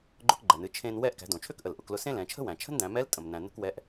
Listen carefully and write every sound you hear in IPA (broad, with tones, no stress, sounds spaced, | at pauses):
ɡ͡ǃ ʊ˧ k ɡ͡ǃ ɛ˩ n ɨ˩˧ t͡ʃʰ ẽ˧ n w ɛ˧ ʔ k æ̤˩˧ d õ˩ t͡ʃʰ ø˥ k ʔ ə˩ l ʔ ʊ˩˧ k l ʊ˧ s ẽ˥ l ɛ̃˩˧ t͡ʃʰ ə̤˥ w æ̃˩ t͡ʃʰ ə̤˥ n d æ̃˩˧ m ɛ˧˥ l tʼ ə̃˩ m n æ̃˩ n ə̤˧ k w ɛ˧˥ ʔ